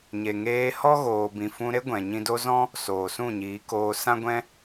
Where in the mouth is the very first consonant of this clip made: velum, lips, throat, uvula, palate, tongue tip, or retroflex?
palate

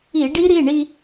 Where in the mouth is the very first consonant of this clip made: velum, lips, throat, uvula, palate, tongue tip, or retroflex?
retroflex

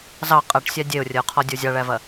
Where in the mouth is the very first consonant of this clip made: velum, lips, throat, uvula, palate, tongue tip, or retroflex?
tongue tip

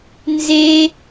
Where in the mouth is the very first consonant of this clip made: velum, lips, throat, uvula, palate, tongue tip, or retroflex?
tongue tip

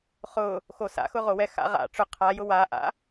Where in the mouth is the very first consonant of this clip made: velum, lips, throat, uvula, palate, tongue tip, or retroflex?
uvula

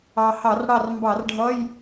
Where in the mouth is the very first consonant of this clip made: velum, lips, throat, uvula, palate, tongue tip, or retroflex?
throat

